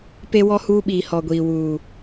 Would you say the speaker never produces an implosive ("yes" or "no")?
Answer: no